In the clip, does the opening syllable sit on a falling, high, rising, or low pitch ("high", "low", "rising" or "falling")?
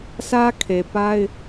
high